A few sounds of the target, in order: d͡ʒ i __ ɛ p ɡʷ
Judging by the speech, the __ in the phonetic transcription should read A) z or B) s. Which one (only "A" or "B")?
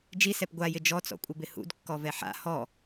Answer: B